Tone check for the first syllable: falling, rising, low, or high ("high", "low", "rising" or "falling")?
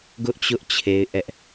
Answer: high